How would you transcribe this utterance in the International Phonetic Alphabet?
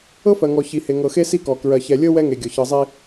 ɤ˦ f ɜ˨ ŋ ɔ˨ ç i˨ h e˨ ŋ ɤ˨ x e˦ s i˦ k ɔ˨ k ɹ ɜ˨ ç ɛ˨ lʲ ɤ˦ w ɛ˦ ŋ e˨ ɡʲ ɔ˨ ç ɤ˨ zˤ i˦

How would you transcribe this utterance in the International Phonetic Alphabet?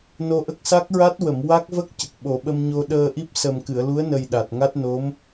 n o˧ ʔ ə˦˥ k̚ s a˦˥ k̚ ɹ a˦˥ t̚ w ə˨˩˨ m w a˦˥ k̚ v ə˦˥ k̚ c ə˨˩ k̚ ɓ o˨˩˦ ɓ ə˧ m ɲ o˧ ɗ əː˧ ʔ i˦˥ p̚ s ə˨˩ m k ɨ˨˩˨ ə̯ l u˧˥ ə̯ n ə˨˩ j ɗ a˨˩ t̚ ŋ a˦˥ t̚ n o˧˥ m

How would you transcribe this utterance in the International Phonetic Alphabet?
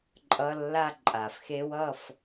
ǃʼ ʌ˧˥˧ lː a˥˧ ǃʼ a˨˩ f x e˦˥ w ʌ˥˧ f

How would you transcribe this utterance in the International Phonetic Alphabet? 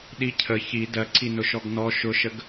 ɗ i cʰ ə ç i d ɜ ǀ i n ʊ ʃ ɔ ɡ n ɔ ʃ ʊ ʃ ə ɡ

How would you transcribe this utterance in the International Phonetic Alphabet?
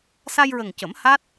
s a˧ j ɹ ə˨˩ ŋ c ə˨˩˦ m h a˦˥ t̚

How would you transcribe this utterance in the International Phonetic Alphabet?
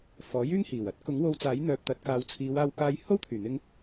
f ɔː˨˥ j yː˥ ŋ h iː˨˩ w ɐ˥ t̚ k ʊ˨˥ ŋ w o˧ w t͡s aː˨˥ j n̪ œː˨ p̚ t̪ ɐ˨˥ t̚ k aː˨˧ w t͡sʰ iː˨˧ w aː˧ w k aː˧ j h o˥ w t̪ʰ yː˨˩ n̪ ɪ˧ ŋ

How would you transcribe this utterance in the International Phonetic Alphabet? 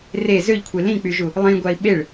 r e z ø ʎ kʷʰ e l ĩ k͡p y ʒ u | lˠ ĩ ɡʷ a i̯ ɓ e ɭ

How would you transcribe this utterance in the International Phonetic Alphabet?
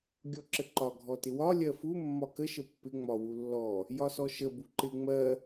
ɡʲ ɔ ǁ ə ǃ ɒ ɡʱ ɔ t ɪ w ɒ lʲ ɜ f u mː ɒ k ə ʃ ə pː ɪ ŋ͡m ɒ w u lː ɔ | j ɒ s ɔ ʃ ə b u ǃ ɪ ŋ͡m ɜ

